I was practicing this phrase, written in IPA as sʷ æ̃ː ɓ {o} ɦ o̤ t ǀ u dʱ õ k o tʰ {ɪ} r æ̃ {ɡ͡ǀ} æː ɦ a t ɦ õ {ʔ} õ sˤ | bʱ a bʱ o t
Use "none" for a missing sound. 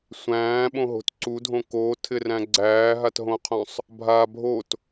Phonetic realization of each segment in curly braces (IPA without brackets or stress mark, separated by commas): õ, ɪ, ɡ͡ǀ, qʰ